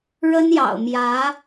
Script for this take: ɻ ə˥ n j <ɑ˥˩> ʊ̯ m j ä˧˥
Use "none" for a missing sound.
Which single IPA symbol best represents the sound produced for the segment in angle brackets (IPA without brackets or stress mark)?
ɑ̰˨˩